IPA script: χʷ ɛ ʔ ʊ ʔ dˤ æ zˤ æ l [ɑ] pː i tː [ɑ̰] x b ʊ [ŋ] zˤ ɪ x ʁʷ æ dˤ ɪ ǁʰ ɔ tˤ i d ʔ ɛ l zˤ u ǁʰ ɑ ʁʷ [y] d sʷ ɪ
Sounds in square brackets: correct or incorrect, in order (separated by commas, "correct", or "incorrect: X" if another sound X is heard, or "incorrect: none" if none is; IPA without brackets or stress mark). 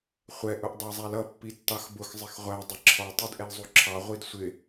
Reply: incorrect: ʌ, incorrect: ɑ, incorrect: x, incorrect: i